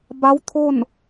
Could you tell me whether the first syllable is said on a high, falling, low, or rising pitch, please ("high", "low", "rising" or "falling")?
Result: rising